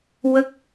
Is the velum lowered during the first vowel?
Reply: no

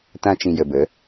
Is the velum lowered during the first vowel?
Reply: yes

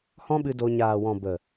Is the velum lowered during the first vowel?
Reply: yes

